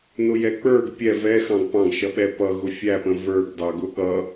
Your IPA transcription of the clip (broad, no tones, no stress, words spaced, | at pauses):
nʊjɛk͡pə˞ɡ pʲɛ vɛ xɑ̃ɡpɑ̃ɡ ʃʌɓɛpʌ ɣʊfʲæpə̃ və˞ɡdɑ ɡʊɠʌ